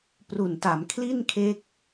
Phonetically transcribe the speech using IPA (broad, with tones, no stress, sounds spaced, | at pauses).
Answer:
p r u˨˩ n t a˩˦ m kʰ l i˥˩ n kʰ e˦˥ k̚